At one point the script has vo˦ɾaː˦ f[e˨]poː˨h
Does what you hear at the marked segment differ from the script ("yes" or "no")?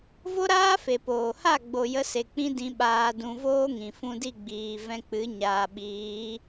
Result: no